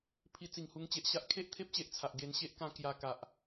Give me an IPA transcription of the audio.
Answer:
pʰ i˧ t͡s i˨˩ ŋ h u˧ ŋ t͡ɕ e˨ ʔ ɕ a˦ ʔ kʰ e˦ ʔ t̪ʰ e˦ p̚ t͡ɕ e˨ ʔ t͡sʰ a˨ ʔ ɡ e˧ n ɕ e˦ ʔ k ã˧ k j a˧ k a˨ ʔ

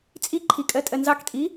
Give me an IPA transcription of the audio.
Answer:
t͡sʼ i ǃʰ i kʼ ɜ tʼ ɜ n z ɑ k tʼ i

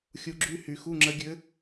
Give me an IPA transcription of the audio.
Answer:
xʲ u˧˥ ɡ͡ǁ y˧˥˧ h y˨˩˦ x u˧˥˧ ŋ͡ǁ ə˧˥ ɡʲ ɘ˧˥

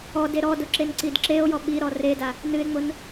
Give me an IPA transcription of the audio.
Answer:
ɔ d e ɾ ɔ d ʊ ǁ e n ǀ i d ǁ e o̯ j ɔ ɓ i ɾ ɔ r e d a | n ɨ e̯ ŋ͡m ʊ n

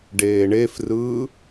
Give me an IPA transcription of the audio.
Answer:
ɖ eː ɳ e f r ɯː

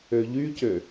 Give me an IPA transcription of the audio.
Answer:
ø ʎ y c ø

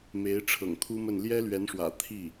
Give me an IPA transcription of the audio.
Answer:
m e˧˥ ɪ̯ ʈ͡ʂʰ ɤ̰˨˩ ŋ t̪ʰ u˥ m ə˥˩ n l j ɛ˥ l ɥ ɛ˧˥ n ʂ w ä̰˨˩ t̪ʰ i˥˩

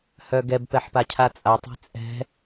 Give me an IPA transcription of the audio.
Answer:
h œ ɡ ɛ b p ɛ ħ p a cʰ a t͡sʼ a tˤ ɛ̤ t͡sʼ ɛ̤

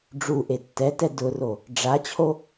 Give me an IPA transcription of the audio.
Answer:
ɖ͡ʐ u ʔ e tː ɛ t ɛ d ʊ r o | ɖ͡ʐ a t͡ɕʰ o

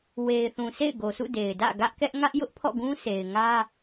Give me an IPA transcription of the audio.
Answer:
w e˨ ɪ̯ θ ũ˨ s ḛ˦˨ ɪ̯ ɡ o˨ sʰ ṵ˦˨ d e˨ ɪ̯ d ä̰˦˨ ɡ ä˦ ʔ k ɛ˦ ʔ ŋ ä˦ ʔ j ʊ˦ ʔ pʰ ɔ̰˦˨ ɡ ũ˦ s e˨ ɪ̯ ŋ ä˦

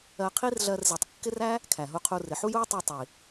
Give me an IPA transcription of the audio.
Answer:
ɜ˧ qʰ i˦ r ɮ ɜ˧ r z i˨ tˤ kː ɪ˦ r æ˦ | kʰ æ˨ ɦ u˧ qʰ u˧ r ɪ˨ ħ u˦ j u˦ j tˤ u˧ tˤ i˨

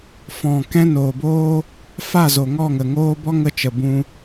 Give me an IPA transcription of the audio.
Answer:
f ɔ̃˨ k ɛ̃˦ n oː˨ b oː˦ | f a˦˨ z o˨ ŋ ɔ˦˨ ŋ ə˨ ŋ oː˦ b ɔ˦ ŋ ə˧ t͡ʃ ə˨ b ũ˧

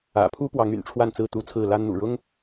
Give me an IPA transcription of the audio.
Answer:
ä̰˨˩ pʰ u˦ p w ɑ˨˦ ŋ y̰˨˩ n ʈ͡ʂʰ w a˥˨ n t͡s ɹ̩˥˨ t̪ u˥˨ t͡sʰ ɹ̩˥˨ l a˦ n n̪ ṵ˨˩ ɻ ʊ˦ ŋ

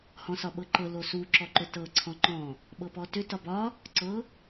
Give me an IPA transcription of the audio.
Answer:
h ɔ̃ s ɒ ɓ ɤ ǃ ɤ l o s u ǁ ɔ ǃ ʏ t ɤ ǀʰ ɔ̃ ŋ͡ǃ ɔ̃ | ɓ ɤ p ɔ t ʏ t ɒ b ɒ | ǀ ɤ

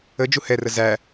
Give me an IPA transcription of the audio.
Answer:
ə d͡ʒ u h ɛ r ə z æ

